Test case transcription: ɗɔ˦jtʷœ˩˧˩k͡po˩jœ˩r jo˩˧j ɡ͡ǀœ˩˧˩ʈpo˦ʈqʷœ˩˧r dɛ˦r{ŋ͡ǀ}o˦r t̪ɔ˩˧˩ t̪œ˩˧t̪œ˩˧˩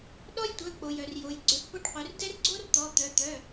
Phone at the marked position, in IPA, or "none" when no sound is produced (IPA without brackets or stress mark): ɡ͡ǀ